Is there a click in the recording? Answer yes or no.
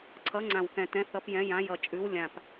yes